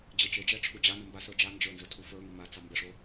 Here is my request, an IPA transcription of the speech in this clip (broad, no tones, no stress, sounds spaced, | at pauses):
d͡ʑ e t͡ʃ e d͡ʒ ɛ ʈ͡ʂʰ u d͡ʑ a n ə m b a s ə˞ d͡ʒ a n d͡ʒ ə˞ n z ɵ tʰ u f ə˞ ŋ e m a t͡s ɑ m b ə ʂ o